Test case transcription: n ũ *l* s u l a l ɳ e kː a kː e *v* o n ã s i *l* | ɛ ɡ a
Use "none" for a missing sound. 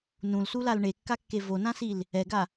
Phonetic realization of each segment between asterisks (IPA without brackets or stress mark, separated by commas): l, v, l